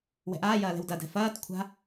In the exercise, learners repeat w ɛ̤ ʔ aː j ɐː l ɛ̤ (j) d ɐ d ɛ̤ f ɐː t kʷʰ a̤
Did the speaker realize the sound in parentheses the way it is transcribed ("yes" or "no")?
no